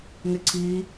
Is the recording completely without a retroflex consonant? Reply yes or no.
yes